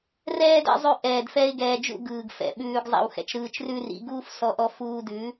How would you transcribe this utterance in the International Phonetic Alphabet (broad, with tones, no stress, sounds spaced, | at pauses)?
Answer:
r ɛː˦ d ɛ̰˧ zˤ ʉ˧ ʔ ɛː˨ d f ɛ˧ ɪ̯ ɡ ɛː˨ d͡ʒ ṵ˦˨ ɡ ɯː˨ ɡ f ɛ̰˨ ɓ ʉː˧ ɡ zˤ a̰˧ w x ɛ̰˨ t͡ʃ ɾ ɯː˧ t͡ʃ r ʉ˦ r ḭ˨˦ ɡ uː˦ f s ɔ˧ ʔ ɔ˧ f uː˧ d ʉ˨˦